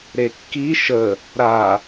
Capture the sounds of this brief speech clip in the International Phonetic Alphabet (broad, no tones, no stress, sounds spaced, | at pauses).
ɾ e kː i ʃ ə | ɾ a